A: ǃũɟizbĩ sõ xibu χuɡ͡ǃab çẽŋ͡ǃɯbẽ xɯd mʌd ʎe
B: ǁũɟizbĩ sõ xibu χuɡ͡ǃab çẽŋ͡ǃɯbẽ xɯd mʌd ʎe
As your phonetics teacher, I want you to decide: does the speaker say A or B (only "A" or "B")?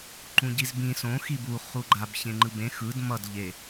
A